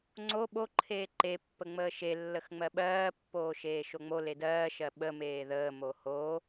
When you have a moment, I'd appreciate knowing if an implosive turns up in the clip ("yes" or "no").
yes